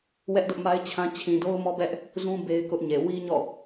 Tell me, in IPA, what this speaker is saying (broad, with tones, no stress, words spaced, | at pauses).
wɛ˦ʔdʊ˦ʔma˦ɪ̯t͡ɕʰã˦ t͡ɕʰĩ˨ do˦ʊ̯mɔ˦bɛ˦ʔ | zũ˦ be˦ɪ̯kʊ˦ʔɲe˨ wi˦ɲɔ̰˦˨